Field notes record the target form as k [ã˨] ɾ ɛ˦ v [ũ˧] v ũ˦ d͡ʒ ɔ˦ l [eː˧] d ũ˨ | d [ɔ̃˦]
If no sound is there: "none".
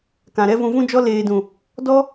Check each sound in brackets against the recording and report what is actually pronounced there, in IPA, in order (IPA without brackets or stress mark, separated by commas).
ã˨, ũ˧, eː˧, ɔ˦